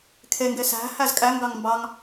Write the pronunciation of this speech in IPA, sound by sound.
kʰeŋɡe sæ̤ hæzkʼæŋɡɑŋ mbɑŋ

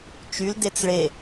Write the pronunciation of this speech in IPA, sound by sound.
t͡ʃyldet͡s ɭe

